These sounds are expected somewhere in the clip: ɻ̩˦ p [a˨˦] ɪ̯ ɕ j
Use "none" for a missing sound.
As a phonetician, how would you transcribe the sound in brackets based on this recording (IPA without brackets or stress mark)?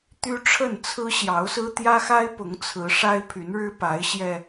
a˨˦